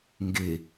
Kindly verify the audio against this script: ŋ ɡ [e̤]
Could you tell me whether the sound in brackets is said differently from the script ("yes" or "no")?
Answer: yes